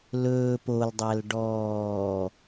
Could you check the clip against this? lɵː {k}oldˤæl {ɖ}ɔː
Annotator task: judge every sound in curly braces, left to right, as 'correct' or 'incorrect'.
incorrect: p, correct

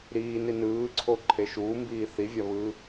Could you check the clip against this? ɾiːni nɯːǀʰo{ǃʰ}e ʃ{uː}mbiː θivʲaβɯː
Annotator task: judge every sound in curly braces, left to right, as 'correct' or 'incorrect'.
correct, correct

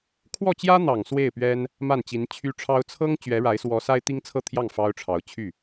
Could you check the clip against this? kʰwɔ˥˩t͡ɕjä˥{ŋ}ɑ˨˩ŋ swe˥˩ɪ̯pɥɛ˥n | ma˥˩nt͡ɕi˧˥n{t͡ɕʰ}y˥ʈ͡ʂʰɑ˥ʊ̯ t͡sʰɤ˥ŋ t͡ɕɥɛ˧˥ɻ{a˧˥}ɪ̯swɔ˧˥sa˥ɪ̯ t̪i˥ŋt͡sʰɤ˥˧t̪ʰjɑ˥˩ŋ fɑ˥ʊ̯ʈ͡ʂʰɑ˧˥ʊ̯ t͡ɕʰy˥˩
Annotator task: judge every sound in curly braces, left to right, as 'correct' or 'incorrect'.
incorrect: n̪, correct, correct

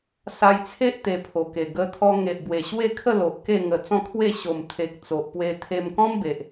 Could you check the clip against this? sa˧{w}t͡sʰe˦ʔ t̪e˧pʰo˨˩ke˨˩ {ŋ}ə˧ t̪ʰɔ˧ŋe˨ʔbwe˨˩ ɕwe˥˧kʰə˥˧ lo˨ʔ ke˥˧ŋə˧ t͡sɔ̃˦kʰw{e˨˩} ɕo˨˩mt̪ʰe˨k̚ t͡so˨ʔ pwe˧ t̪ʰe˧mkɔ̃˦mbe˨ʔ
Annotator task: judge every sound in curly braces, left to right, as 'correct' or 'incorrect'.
incorrect: j, incorrect: ɡ, incorrect: e˥˧

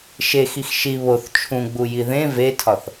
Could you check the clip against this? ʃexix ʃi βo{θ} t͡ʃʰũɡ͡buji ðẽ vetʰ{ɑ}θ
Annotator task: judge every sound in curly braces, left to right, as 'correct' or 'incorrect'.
correct, incorrect: ɒ

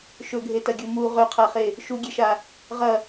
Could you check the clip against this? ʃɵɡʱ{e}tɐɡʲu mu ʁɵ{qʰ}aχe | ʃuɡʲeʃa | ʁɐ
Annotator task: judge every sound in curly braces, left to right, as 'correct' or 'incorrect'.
correct, correct

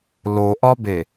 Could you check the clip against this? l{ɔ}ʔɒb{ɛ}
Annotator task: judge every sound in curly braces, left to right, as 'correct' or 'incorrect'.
incorrect: o, incorrect: e

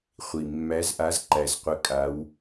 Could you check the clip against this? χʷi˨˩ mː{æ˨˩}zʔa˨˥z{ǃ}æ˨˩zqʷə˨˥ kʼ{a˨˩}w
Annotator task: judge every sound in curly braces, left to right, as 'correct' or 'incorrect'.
incorrect: æ˨˥, correct, incorrect: a˨˥

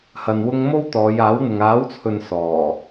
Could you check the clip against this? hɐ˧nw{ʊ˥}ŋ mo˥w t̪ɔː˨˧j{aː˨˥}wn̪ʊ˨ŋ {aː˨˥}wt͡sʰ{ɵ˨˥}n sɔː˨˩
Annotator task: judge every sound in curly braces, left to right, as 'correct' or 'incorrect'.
correct, correct, correct, incorrect: ɵ˨

